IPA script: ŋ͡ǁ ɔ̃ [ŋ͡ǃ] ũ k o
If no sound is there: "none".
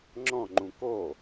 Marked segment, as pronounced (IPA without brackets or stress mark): ŋ͡ǃ